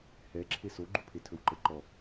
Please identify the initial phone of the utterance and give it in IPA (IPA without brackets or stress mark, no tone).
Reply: h